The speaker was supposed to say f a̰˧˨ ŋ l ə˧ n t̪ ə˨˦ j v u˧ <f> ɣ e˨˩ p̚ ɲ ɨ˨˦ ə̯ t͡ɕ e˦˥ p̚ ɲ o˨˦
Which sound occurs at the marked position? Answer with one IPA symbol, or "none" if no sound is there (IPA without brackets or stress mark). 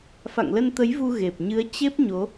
none